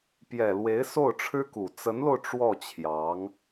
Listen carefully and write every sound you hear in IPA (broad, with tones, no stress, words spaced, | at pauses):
pjɛ˨˩lwe˧˥ɪ̯ so˥˩ʊ̯ʈ͡ʂʰɻ̩˥ku˨˩ t͡sə˧˥nlo˧ʊ̯ ʈ͡ʂwɔ˥˩t͡ɕʰjɑ˧˥ŋ